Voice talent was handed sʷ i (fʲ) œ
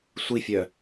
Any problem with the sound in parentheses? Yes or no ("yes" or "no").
no